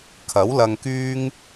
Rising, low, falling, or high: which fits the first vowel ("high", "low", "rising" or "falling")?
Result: rising